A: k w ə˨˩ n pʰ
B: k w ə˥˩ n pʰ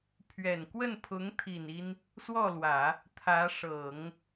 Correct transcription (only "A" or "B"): B